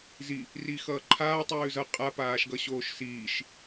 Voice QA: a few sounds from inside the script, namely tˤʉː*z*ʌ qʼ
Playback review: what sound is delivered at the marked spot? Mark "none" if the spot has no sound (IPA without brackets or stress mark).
z